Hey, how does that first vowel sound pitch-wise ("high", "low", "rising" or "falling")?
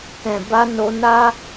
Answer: low